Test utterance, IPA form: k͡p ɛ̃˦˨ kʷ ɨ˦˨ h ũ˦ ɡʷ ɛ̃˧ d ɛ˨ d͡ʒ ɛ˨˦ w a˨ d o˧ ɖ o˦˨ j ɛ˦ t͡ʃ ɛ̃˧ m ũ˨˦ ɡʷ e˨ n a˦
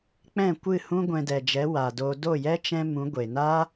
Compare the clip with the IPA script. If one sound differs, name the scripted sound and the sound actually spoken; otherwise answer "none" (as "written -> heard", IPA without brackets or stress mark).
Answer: ɖ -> d